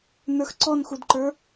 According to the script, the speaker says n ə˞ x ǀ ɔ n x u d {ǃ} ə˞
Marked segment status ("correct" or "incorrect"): correct